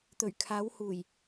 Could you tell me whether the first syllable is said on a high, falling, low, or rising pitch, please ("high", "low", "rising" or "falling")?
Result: low